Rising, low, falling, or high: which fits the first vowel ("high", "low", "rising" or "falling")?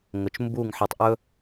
low